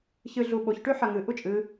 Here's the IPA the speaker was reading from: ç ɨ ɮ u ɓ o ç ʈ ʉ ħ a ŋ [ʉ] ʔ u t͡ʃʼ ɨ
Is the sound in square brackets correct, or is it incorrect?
incorrect